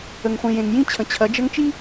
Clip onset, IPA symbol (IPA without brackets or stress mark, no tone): ə